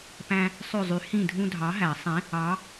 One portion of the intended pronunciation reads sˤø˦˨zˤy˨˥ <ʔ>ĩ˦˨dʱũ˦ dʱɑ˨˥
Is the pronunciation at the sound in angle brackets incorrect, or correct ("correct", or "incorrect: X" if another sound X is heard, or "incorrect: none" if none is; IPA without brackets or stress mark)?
incorrect: h